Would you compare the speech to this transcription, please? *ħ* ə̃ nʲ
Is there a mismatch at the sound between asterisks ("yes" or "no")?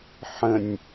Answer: no